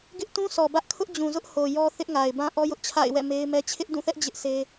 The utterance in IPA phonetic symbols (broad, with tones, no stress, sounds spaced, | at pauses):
ɡ ɪ˦ ʔ t ũ˦ s ɔ˨ b ä˦ ʔ kʰ ʊ˦ ʔ d͡ʑ ũ˨ z ʊ˦ ʔ h o˨ j ɔ˦ θ ɪ˦ ʔ ŋ a˨ ɪ̯ b ã˦ ʔ ɔ˦ j ʊ˦ ʔ t͡ɕʰ a̰˦˨ ɪ̯ w ɛ̰˦˨ m e˦ ɪ̯ m ɛ˦ t͡ɕʰ ɪ˦ ʔ d ũ˦˨ θ ɛ˦ ʔ d͡ʑ ɪ˦ ʔ sʰ e˦